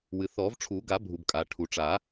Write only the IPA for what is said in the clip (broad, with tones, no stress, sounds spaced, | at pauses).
w ɨ˩ θ ɔ˨˩˦ v ʈ͡ʂʰ u˨˩˦ ɡ a˨˩˦ bʱ u˩ b kʼ a˩ ʈʰ u˩ ʈ͡ʂ a˨˩˦